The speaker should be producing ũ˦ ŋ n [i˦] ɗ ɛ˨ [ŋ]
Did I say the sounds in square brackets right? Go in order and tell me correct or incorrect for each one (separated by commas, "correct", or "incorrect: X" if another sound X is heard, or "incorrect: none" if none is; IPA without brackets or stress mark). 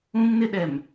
incorrect: ɪ˦, incorrect: m